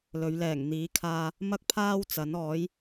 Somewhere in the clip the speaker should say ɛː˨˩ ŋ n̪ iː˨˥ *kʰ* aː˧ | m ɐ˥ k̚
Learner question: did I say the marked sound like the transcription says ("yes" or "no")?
yes